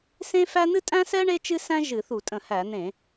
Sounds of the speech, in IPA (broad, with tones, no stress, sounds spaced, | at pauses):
s ẽ˥ f æ˥ n̪ ɨ˥ tʼ æ̃˥ s ɛ˥ ɳ e˥ t͡ʃ ɨ˥ s æ̃˥ ʒ ɨ˧˩˧ θ u˧˩˧ tʼ ə̃˧˩˧ h æ˧˩˧ n̪ ẽ˧˩˧